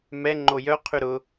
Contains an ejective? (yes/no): no